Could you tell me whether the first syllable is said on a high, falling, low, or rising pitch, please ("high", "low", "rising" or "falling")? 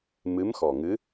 rising